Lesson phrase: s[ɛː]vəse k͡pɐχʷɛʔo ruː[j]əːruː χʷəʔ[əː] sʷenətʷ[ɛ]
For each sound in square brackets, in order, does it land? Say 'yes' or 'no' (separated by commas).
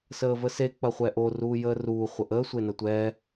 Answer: no, yes, yes, no